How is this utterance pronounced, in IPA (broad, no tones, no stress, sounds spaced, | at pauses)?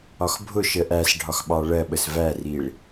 ɒ x bʱ ʊ ʃ ə ʔ æ s ɖʱ ɒ x ɓ ɑ ɭ ɜ ɓ ə s v æ r i ɭ